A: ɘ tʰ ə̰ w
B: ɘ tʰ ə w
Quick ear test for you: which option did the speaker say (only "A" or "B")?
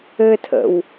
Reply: A